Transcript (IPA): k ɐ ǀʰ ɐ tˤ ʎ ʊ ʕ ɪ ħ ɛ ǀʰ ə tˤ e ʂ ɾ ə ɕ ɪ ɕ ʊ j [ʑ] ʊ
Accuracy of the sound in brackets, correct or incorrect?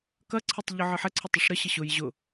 correct